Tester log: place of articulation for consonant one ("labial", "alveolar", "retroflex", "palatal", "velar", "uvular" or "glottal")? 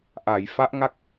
glottal